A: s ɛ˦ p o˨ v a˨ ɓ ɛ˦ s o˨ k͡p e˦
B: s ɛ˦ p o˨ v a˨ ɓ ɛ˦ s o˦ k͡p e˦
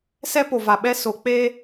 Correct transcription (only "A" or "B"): A